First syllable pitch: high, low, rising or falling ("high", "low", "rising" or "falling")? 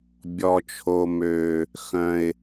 high